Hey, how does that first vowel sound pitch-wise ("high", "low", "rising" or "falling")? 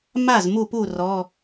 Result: falling